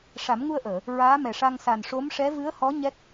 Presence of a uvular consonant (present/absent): absent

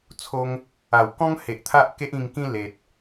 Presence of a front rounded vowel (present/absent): absent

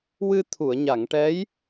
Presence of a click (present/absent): absent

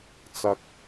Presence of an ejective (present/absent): absent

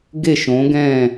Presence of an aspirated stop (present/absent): absent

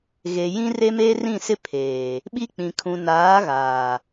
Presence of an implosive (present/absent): present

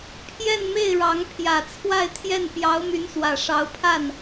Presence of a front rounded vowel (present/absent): present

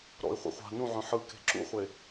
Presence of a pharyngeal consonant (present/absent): present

